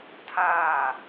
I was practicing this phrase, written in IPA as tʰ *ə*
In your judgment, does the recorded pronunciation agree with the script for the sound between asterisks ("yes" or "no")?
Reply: no